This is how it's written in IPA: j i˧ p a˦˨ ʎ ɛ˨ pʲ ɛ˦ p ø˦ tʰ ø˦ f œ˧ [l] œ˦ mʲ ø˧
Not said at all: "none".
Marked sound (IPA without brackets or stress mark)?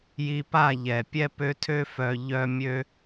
ʎ